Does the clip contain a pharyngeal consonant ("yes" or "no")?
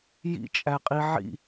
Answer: yes